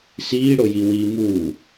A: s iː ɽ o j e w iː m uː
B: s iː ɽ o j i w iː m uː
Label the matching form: B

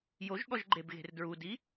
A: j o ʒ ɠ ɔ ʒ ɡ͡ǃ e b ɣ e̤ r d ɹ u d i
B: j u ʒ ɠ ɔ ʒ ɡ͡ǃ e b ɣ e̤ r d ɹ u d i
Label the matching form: A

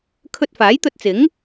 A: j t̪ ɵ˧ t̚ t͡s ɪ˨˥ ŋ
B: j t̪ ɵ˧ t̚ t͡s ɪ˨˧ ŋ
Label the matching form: A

